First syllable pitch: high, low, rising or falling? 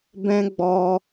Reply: high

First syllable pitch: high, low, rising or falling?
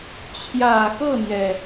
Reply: low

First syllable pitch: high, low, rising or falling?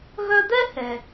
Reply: high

